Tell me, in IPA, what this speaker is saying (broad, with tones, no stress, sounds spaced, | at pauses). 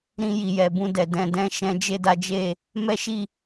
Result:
ɾ ĩ˧ j i˨ j ɛ˨ b ũ˧ d ɛ˨ d ɛ̃˧ d ɛ̃˦ ʃ ɛ̃˦ d͡ʒ e˦ d a˦ d͡ʒ e˦˨ | m ɛ˦ ʃ i˦˨